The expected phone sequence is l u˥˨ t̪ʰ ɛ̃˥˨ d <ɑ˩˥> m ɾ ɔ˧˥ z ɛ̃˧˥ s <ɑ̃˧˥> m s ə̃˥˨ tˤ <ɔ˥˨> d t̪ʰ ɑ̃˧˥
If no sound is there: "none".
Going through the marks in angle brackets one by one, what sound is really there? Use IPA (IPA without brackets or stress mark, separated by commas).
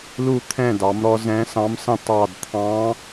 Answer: ɑ˩˥, ɑ̃˧˥, ɑ˥˨